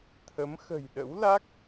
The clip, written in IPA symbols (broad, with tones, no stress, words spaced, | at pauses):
t̪ʰə˨˦m xə̤˨˩jɗə̰˧˥wla˦˥k̚